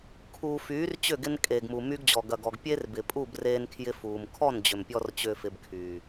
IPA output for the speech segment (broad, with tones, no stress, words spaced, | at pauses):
kʰuː˨fyː˨˦r t͡ɕʏ˦˨ɡɪ˧n kʼeː˨ɡmu˨my˧ɡd͡ʑɔ˨ ɡɐ˨ɡɔ˨ɡ pʲe˦rbɪ˨pʼu˦˨b reː˧nkʰjɪ˧ fuː˨m kʰɔ˦˨nd͡ʑʏ˨m pʲɔ˦r t͡ɕʏː˧fɪ˧bkʰyː˨